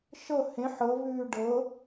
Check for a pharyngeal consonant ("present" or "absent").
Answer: present